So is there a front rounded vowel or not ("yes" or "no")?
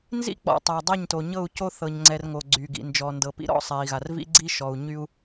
yes